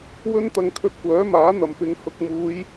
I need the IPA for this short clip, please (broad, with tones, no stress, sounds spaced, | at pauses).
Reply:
w ɵ˥ n t̪ ɐ˧ ŋ kʰ ɵ˧ t̚ kʷ œː˨˥ m aː˨˥ n̪ ɐ˨ m p ɪ˨˧ ŋ h ʊ˨ k̚ m uː˨˧ j